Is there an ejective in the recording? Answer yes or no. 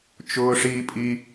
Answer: yes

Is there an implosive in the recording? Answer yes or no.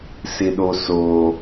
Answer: yes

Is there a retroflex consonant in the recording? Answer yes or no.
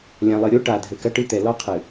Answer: yes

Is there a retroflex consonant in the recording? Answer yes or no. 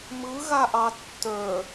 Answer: no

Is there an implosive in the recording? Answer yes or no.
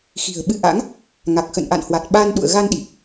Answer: yes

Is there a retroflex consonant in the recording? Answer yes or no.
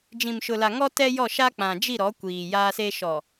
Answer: no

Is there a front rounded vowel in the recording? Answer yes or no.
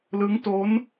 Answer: no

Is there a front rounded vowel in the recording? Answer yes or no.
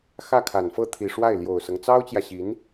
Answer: no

